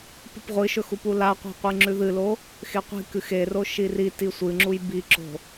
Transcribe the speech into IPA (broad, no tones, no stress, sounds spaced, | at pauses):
p ɨ p ʁʷ ɨ ʃ ɵ x u p u l a qʷ i̤ qʷ ɨ ŋ͡ǁ ʉ ð ɨ l o | x e qʷ i̤ k ɨ x e r o ʃ i r i t i sʷ ɨ ŋ͡ǁ u j b i ǁ o̤